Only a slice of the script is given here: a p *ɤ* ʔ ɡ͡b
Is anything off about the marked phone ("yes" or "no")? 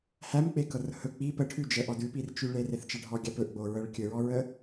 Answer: yes